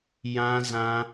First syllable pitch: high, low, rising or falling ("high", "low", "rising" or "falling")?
high